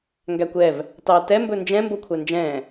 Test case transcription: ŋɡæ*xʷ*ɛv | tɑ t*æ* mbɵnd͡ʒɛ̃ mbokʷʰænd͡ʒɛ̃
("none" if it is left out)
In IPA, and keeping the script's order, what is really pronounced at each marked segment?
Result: kʷ, ɛ

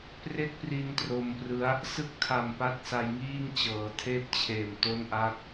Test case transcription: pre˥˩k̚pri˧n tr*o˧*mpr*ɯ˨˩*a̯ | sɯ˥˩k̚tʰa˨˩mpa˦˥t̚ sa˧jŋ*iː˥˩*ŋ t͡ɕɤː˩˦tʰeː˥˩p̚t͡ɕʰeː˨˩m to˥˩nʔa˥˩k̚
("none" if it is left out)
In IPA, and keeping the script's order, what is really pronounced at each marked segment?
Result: o˧, ɯ˦˥, iː˥˩

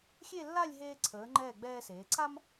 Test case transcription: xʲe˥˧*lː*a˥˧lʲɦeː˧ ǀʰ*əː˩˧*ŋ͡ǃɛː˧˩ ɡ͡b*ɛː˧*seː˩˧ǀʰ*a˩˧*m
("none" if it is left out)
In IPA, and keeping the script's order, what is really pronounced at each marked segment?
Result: lː, əː˩˧, ɛː˧, a˥

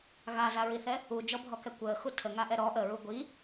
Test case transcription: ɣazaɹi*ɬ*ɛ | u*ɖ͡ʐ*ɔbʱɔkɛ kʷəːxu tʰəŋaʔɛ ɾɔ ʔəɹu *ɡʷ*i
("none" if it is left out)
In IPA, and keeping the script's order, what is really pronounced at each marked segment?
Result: θ, d͡ʒ, ɡʷ

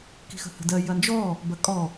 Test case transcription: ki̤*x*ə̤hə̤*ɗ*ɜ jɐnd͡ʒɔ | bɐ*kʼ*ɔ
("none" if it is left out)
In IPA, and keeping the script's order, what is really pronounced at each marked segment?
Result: x, d, kʼ

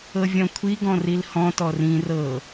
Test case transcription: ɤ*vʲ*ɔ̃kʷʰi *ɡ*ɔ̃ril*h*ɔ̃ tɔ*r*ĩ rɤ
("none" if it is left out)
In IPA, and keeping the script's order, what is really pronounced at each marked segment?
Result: vʲ, ɡ, h, r

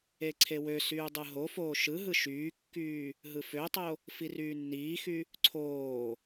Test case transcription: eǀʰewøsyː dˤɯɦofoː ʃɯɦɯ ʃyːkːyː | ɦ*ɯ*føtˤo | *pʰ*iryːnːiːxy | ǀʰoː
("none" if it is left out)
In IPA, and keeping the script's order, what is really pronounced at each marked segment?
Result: ɯ, f

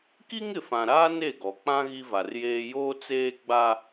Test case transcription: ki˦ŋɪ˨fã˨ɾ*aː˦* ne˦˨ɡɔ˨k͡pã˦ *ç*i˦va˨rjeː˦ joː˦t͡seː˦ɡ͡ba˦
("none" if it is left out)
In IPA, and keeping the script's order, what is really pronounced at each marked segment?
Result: aː˦, ɣ

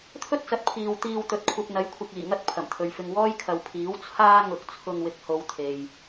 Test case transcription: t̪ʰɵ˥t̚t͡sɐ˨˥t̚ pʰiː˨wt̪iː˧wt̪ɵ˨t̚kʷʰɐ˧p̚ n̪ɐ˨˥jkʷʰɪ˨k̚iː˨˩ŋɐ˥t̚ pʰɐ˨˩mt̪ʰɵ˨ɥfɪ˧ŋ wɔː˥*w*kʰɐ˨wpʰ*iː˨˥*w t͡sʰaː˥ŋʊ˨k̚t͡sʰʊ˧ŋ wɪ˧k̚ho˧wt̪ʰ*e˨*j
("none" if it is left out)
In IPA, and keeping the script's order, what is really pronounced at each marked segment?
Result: j, iː˨˥, e˨

